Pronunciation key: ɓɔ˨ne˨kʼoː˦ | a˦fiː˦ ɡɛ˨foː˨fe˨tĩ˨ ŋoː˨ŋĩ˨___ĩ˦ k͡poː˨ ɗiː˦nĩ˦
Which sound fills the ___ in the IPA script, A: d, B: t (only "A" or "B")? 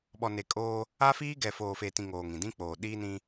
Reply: A